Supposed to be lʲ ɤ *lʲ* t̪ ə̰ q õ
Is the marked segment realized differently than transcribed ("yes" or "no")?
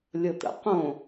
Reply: yes